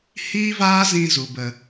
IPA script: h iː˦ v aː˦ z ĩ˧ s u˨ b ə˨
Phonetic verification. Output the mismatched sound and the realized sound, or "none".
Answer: s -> z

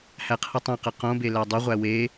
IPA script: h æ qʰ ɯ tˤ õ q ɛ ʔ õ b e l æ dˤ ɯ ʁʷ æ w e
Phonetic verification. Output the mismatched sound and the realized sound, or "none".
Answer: ʔ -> q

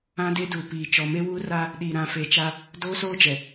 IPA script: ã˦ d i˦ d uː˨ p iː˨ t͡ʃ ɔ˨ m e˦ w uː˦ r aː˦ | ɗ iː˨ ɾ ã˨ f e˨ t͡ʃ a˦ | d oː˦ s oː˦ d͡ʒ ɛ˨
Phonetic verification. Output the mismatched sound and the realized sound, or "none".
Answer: i˦ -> e˦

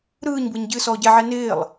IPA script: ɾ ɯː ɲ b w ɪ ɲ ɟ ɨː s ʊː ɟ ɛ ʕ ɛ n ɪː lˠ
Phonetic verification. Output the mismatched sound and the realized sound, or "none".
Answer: ʊː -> ɔː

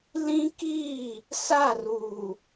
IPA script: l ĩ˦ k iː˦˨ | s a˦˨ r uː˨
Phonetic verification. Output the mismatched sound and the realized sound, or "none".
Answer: none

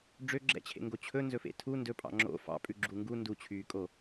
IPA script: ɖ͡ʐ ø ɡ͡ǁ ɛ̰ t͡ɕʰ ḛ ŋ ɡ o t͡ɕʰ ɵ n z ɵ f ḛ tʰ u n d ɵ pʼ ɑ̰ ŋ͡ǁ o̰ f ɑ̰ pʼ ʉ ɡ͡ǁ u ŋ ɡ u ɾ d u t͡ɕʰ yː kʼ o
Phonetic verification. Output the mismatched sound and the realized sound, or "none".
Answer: ɾ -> n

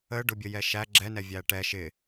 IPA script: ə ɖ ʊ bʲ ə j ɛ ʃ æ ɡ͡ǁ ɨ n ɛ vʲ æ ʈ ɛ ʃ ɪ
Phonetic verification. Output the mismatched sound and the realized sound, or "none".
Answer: ɨ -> ɛ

